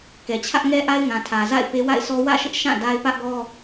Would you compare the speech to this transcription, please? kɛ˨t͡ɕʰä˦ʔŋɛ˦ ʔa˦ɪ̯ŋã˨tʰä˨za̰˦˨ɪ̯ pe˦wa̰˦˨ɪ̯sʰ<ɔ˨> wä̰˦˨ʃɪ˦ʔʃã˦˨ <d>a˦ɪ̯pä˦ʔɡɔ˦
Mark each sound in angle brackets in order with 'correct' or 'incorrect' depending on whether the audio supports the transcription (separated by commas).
incorrect, correct